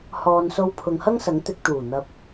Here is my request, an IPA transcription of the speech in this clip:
h ɔː˨ n s o˧ w pʰ ʊ˨ ŋ h ɐ˥ ŋ s ɐ˨˥ ŋ t̪ ɪ˧ k̚ t̪ uː˨˩ n̪ ɐ˨ p̚

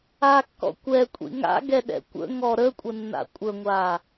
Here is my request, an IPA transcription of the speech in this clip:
a kː ɔ̰ kʷ ɛ kʷʼ ḭ ŋ a̰ ɡ ɛ ɗ ɛ̰ kʷ ə̰ ŋ ɔ ɾ ə kʷʼ ə nː a̰ kʷʼ ə ŋʷ a

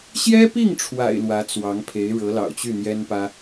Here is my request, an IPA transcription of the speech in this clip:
ɕ j ɛ˥ p i˥˩ ŋ ʈ͡ʂʰ w a̰˨˩ ɪ̯ l w ä˧˥ t͡s w ɑ˧˥ ŋ pʰ e˧˥ ɪ̯ ɻ ɤ˧˥ l ɑ̰˨˩ ʊ̯ t͡ɕ y˥˩ n̪ j ɛ˥ n p ä˥

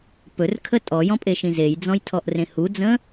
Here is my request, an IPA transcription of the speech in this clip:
p ɵ r kʰ ə tʼ ɔ j ɔ̃ pʼ e ʃ ĩ z e j d͡z ɔ̃ j tʰ ɔ ʔ r ẽ h u d͡z ə̃

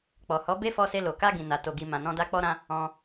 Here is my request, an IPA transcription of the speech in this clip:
k͡p ɔ˨ h ɔ˨˦ b e˦ f ɔ˧ s e˧ l o˨ k a˧ ɡ ĩ˨ n a˨ t o˨ ɡ i˨ m ã˨ n ɔ̃˧ d a˦ k͡p ɔ˦ ɾ ã˦ | ɔ̃˧

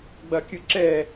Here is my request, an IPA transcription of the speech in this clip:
ɡ͡b ɐ kʲ ɯ ǁ ɛ

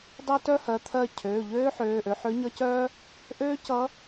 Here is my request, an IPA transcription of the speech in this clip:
dˤ œ˥ t œ˥ h ɜ˩˧˩ t̪ʰ ɜ˥˩ cʰ øː˩˧˩ ʎ øː˥ ħ øː˩˧˩ ʔ ø˧ ħ ø˧˥ ɲ ʌ˧˥ c œː˥ | ʔ øː˥ c ʌ˧˥

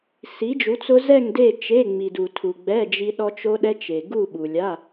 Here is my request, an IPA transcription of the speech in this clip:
s i˨˥ d͡ʒ u˨˥ t͡s ʊ˦˥ z ɛ˥˧ ŋ d e˥˧ t͡ʃ e˧˥˧ ŋ͡m i˨ d u˨ tʰ u˨ ɡ͡b ɛ˧˥˧ d͡ʒ i˦˥ ɗ ɔ˦˥ t͡ʃ o˦˥ ɗ ɛ˦˥ t͡ʃ e˨ ɡ u˥˧ ɓ u˨ lʲ a˧˥˧

